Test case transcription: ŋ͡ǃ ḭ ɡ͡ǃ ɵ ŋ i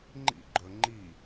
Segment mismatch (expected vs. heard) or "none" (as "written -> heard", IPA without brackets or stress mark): ŋ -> ŋ͡ǃ